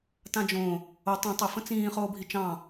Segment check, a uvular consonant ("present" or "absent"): present